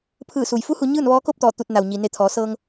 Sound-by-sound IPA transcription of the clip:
pʰ ɯː˧˩ s u˩ j f u˧˥ h u˩˧ ɲ ɯː˥˨ n ʋ ɔː˧˥ k o˥˨ p̚ t̪ ɔː˧˩ t̪ u˧˩ t̚ n a˩ w ɲ i˩ n e˧˩ t̪ʰ ɔː˩˧ s ɤː˧ ŋ

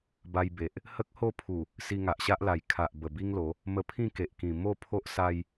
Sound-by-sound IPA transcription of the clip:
b a˧ j b e˨ ʔ | h ə˦ k̚ h o˥˧ pʰ u˨˩ | s i˧ ŋ a˨ ʔ ɕ a˦ ʔ l a˨˩ j kʰ a˨ ʔ b ə˨˩ b i˦ ŋ l o˨˦ | m ə˧ pʰ ĩ˥˧ k e˨ ʔ k ĩ˨˩ m o˥˧ pʰ o˦ ʔ s a˧ j

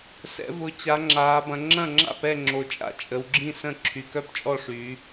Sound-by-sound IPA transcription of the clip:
s ɛ̰˩˧ v ʊ˩˧ t͡ɕ a˩˧ ŋ͡ǁ aː˩˧ b ɐ̃˩˧ ŋ͡ǁ ɐ̃˥˩ ŋ͡ǁ a̰˥˩ p ɛ˥˩ ŋ͡ǁ o˩˧ t͡ʃʼ a̰˥˩ t͡ʃʼ ə˩˧ w ɡ͡ǁ ĩ˥˩ s ə̃˥˩ ǁʰ y˩˧ k œ˥˩ p t͡ʃʼ ɔ˥˩ ʂ yː˩˧

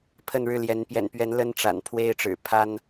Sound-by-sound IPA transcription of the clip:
pʰ ə˥˨ n ɻ ɻ̩˥˨ l j ɛ˨˦ n p j ɛ̰˨˩ n p ɥ ɛ˨˦ n l ə˦ n ʈ͡ʂ a̰˨˩ n pʰ w e˦ ɪ̯ ʈ͡ʂ ɻ̩˨˩ pʰ a˦ n

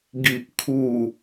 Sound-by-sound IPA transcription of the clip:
ɡ i˨ ʔ kʰ u˨˩

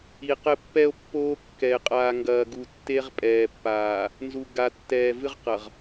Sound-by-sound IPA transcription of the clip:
i˨ q ɘ˦ pː ɛ˦ o̯ pː oː˦ kː ɛ˨ e̯ qʼ aː˨ ŋ ɡ ɐː˨ ɡ u˨ tː e˦ ʁ pʼ ɛː˨ pː aː˨ | n z u˨ ɡ a˨ tː ɛː˨ v ɨ˦ ʁ q ɐ˨ ʁ

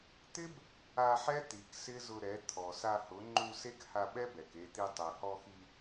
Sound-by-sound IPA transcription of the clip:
t̪ ɪ˦ b | a˧ ħ ɛ˦ t̪ i˨ k s ɪ˦ z ʊ˧ ɾ ɛ˨˦ t̪ʰ ɔ˨ s a˧ h ʊ˨˦ ŋ͡ǃ u˧ s e˦ k h a˧ ɓ ɛ˦ b ɛ˨ k e˧ t̪ i˧ tˤ e˨ h ɔ˧ x i˧

